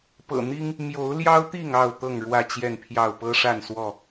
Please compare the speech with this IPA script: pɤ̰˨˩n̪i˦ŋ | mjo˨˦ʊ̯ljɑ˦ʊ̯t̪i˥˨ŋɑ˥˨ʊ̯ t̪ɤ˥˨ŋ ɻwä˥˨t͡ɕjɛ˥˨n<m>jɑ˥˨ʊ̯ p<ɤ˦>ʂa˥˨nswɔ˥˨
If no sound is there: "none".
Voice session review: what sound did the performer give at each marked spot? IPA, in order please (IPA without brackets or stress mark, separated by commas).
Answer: pʰ, ɤ˦